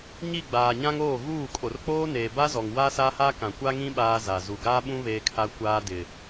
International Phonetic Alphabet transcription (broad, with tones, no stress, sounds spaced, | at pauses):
ɲ i˦˨ ɡ͡b aː˨ ɲ ã˦ ŋ oː˦˨ ɣ uː˦˨ kʼ o˨ r k͡p oː˦ n eː˨ b a˦ z ɔ˨ ŋ w a˦ s a˦ h a˦ k ã˨ kʷ a˦ ŋ ĩ˦ ɓ aː˦ z a˨ z u˨ ɡ aː˦ ɓ ũ˦ β eː˦ kʰ a˦ kʷ aː˦ d ɪ˨